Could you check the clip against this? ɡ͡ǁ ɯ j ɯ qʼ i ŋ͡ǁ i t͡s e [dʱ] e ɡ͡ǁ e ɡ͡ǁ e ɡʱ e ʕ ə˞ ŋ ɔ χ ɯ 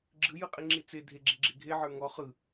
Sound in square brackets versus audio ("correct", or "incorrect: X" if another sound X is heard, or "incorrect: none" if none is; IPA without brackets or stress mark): correct